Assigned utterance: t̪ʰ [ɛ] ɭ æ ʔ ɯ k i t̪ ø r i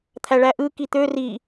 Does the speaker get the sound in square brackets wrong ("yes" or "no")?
yes